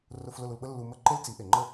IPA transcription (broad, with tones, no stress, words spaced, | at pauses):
rʊ˧f lʊ˥˩lu˧lɓə˥lːu˧ mə˥ ǃe˥lt͡si˩˥ʔe˩ ŋ͡ǃə˥˩